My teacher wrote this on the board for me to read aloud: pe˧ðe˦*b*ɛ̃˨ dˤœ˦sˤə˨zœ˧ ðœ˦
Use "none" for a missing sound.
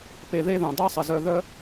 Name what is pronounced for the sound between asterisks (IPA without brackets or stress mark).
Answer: ð